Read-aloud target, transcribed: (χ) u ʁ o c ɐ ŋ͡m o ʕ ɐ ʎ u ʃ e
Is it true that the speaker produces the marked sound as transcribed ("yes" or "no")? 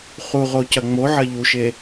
yes